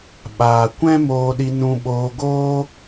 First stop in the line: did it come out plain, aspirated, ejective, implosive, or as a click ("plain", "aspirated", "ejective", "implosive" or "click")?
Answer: implosive